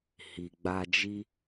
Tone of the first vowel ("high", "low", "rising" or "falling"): low